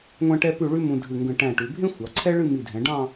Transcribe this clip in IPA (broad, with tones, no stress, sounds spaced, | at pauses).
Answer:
ŋʷ æ̃˧ ʈ ɛ˧ p ʉ˧˩ ɭ ʉ˥ m ũ˧ dʱ ɨ˧˩ ŋ ɡ ə̃˧˩ ʈ æ̃˧˩ ʈ ʉ˩˧ bʱ ẽ˥ xʷ ɑ˩˧ ǀʰ ɛ˥ ɭ ɨ˥˧ m i˧˩ dʱ ɛ̃˩˧ ɖ ɑ̃˥˧